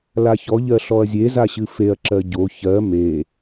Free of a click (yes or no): no